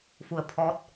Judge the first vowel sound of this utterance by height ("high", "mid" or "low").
high